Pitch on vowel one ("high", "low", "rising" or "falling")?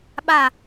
falling